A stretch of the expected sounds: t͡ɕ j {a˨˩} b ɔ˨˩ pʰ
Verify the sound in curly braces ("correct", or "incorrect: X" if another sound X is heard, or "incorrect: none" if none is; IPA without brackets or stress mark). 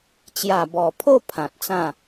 correct